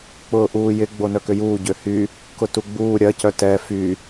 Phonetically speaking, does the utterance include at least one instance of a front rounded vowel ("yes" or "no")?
yes